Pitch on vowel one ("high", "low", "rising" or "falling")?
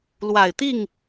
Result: low